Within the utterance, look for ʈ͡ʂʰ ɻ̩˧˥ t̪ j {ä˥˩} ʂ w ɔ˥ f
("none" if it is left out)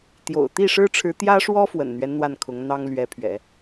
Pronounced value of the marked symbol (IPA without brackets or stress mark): ä˥